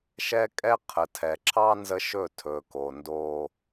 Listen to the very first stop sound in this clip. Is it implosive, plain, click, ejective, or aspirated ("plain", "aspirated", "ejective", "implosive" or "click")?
ejective